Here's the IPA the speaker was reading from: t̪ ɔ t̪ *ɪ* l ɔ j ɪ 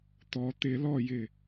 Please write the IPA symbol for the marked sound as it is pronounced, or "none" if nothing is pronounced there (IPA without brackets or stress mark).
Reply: ɪ